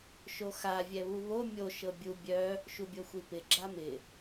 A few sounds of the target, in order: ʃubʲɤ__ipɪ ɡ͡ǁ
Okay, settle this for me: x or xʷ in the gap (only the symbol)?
xʷ